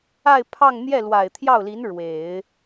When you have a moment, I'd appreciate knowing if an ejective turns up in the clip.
no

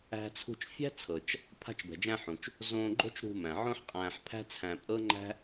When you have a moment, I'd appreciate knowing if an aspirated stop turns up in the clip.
yes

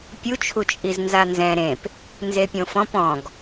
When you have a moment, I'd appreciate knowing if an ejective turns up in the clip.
yes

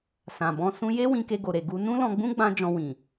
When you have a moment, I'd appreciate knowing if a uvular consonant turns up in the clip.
no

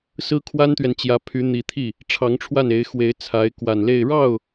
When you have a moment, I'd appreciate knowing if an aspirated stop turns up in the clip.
yes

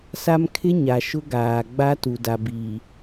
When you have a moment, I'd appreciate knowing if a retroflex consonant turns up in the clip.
no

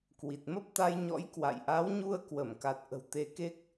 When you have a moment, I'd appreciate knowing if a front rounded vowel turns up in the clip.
no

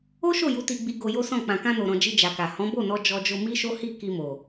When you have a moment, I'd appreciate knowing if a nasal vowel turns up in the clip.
yes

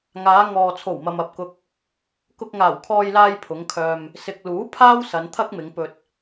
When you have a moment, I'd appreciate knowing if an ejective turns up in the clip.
no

